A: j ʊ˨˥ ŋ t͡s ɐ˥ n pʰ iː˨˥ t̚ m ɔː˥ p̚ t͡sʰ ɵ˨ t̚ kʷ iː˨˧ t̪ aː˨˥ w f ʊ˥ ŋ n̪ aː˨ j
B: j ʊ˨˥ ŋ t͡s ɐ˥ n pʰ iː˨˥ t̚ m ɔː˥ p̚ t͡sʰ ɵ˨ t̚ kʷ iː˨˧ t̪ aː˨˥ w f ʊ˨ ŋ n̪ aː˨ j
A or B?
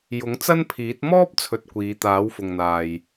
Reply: B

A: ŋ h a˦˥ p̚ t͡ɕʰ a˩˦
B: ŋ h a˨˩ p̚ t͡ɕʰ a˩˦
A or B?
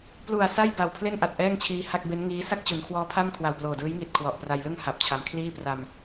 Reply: B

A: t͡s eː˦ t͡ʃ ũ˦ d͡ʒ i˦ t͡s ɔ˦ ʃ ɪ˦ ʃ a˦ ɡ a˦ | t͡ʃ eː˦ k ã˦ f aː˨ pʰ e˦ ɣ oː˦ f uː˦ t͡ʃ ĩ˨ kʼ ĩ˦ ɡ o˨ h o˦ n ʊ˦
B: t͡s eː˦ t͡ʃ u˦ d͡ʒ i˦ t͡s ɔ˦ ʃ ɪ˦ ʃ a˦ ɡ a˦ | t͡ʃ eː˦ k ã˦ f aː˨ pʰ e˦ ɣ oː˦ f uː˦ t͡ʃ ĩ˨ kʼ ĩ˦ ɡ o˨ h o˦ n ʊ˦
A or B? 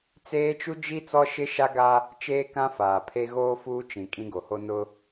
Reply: B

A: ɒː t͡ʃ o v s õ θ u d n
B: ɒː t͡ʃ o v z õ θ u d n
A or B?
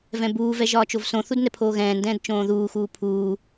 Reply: A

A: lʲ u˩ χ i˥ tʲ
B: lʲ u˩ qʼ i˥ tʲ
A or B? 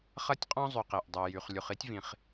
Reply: A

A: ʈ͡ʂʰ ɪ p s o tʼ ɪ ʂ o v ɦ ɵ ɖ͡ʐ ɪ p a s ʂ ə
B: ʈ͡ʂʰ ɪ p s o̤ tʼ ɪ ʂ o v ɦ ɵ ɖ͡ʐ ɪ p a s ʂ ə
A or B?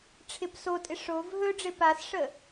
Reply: A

